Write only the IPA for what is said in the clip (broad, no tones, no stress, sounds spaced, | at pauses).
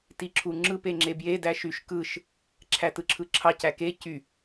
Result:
t i ǁʰ u ŋ͡ǁ ɯ p e ŋ͡ǁ e b j e d æ ʃ y ʃ k ɯ ʃ | ǁʰ æ t ɯ ǁʰ ɯ ǁʰ ɑ c æ k e c y